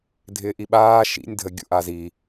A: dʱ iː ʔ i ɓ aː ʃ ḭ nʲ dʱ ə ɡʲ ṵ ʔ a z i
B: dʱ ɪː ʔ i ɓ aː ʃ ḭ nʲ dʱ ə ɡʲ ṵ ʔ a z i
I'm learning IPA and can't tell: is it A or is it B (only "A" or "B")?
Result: B